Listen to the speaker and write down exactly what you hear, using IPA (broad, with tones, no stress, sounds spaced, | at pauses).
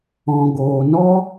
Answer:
ɔ̃˨ ɡ oː˨ n ɔ˦